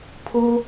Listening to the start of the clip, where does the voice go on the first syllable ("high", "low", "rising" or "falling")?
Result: high